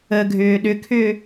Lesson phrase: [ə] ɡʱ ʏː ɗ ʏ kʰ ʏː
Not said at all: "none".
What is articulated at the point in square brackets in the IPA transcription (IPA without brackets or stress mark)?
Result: ə